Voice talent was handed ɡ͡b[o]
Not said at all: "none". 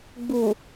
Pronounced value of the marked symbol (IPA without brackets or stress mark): u